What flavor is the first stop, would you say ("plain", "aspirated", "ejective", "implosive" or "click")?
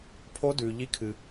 aspirated